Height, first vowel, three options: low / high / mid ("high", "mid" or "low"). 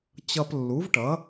mid